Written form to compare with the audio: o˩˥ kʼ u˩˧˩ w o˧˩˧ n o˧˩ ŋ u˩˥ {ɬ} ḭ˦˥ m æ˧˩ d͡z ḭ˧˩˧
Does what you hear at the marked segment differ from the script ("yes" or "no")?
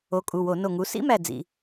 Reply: yes